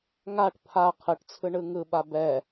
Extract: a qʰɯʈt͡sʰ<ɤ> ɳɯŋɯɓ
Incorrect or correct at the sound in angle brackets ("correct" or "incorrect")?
incorrect